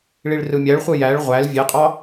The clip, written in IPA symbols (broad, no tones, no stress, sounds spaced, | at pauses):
ɭ i ɭ r ɯ mʲ æ ɭ χʷ ɯ j æ ɭ ʁʷ æ l vʲ e qʼ ɑ